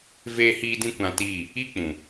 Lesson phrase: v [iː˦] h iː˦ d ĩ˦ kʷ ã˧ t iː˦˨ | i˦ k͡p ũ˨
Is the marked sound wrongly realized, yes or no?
yes